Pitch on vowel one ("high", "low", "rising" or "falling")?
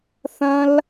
high